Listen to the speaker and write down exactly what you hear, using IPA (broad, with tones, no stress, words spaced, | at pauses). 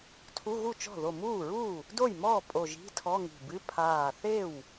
tʰu˧˥˧ɣu˥˩t͡ʃɔ̤˥˩ ðo˧˩muː˥˩ɹuː˥˩ | do˥˩jmɔː˥˩ pʼo˧˩ʒi̤˧˥˧tʰɔ˧˥˧ ŋi̤˧˩bɨ˧˥˧ pʰaː˧˩θe˥˩w